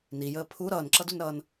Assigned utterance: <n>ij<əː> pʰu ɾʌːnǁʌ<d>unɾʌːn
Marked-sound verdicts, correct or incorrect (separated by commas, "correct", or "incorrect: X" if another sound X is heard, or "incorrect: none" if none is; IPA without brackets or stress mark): correct, correct, correct